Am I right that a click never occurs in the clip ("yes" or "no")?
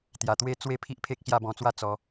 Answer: yes